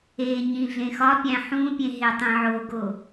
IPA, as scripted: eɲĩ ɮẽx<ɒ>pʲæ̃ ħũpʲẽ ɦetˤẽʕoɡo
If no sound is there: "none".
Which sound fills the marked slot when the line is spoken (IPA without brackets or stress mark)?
ɒ